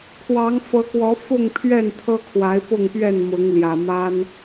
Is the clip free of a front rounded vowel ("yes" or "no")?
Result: yes